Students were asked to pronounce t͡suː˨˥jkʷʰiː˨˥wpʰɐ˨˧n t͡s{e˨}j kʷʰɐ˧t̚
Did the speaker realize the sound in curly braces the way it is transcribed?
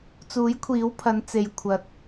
yes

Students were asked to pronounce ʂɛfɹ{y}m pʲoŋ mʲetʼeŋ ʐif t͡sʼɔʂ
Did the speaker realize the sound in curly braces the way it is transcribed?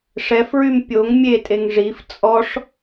yes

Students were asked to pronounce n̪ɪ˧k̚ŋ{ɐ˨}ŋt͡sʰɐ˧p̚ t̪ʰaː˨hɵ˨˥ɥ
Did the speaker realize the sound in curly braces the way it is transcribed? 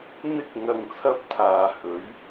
yes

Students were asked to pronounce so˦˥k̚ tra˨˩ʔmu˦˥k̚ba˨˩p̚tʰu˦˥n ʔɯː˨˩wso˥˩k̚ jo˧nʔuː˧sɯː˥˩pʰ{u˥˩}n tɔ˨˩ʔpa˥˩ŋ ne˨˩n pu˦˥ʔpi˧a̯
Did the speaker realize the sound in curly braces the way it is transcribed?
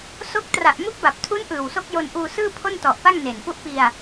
no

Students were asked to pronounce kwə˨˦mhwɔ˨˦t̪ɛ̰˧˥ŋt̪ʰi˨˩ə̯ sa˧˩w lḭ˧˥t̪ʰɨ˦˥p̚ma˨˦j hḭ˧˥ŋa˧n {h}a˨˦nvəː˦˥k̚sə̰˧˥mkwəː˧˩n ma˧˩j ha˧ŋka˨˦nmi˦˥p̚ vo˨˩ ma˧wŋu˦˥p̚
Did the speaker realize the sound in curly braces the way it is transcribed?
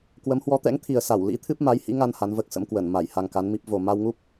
yes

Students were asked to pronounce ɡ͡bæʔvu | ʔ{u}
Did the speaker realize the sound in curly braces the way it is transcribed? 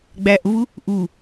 yes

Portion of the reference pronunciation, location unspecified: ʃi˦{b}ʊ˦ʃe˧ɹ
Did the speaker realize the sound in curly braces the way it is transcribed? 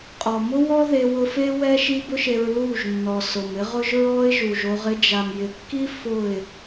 yes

